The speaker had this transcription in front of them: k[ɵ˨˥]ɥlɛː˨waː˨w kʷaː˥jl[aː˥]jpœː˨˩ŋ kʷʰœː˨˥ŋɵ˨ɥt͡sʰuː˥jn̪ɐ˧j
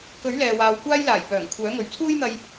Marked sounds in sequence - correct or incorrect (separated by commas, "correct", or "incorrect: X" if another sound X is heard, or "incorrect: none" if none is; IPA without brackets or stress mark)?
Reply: correct, incorrect: aː˨˩